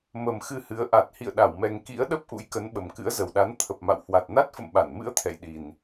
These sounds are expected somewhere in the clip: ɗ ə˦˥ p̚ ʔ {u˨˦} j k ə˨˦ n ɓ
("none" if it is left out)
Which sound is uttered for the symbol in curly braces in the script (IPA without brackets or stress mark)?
ṵ˧˥